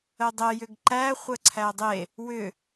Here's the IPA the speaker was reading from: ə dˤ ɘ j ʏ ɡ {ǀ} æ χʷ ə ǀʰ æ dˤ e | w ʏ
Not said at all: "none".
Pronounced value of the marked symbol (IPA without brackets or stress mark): ǃ